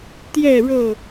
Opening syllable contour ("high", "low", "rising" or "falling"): falling